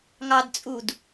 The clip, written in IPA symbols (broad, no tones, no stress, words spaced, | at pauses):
ŋɑdt͡sʼud